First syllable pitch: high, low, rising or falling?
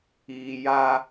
low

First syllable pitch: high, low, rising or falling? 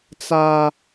high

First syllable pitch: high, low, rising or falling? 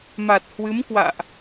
low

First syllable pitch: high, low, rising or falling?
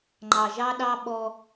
low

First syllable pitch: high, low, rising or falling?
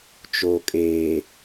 low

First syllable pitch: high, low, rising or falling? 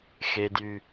high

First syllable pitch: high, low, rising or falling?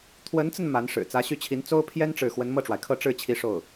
rising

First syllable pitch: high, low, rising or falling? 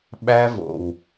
high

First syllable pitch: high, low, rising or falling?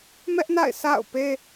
high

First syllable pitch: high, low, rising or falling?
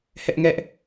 high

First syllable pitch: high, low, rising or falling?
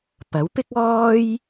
rising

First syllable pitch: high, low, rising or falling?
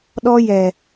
high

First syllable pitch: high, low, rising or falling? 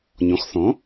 rising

